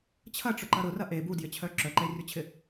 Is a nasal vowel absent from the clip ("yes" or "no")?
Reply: yes